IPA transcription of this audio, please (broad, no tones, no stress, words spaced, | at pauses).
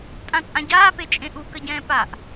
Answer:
tʼãt͡sʼãɟaːpe t͡ʃʼẽʔukəɟɛ̃ː paʔ